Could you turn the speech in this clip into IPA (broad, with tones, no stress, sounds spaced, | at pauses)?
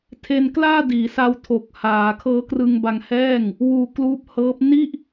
tʰ e˧ n k l aː˥˩ d iː˩˦ s a˧ w tʰ o˨˩ k̚ h aː˩˦ kʰ ɤː˦˥ k r ɯ˧ ŋ b a˧ ŋ h ɛː˥˩ ŋ | w uː˧ k l uː˦˥ p̚ h ɤː˦˥ p̚ n i˥˩ ʔ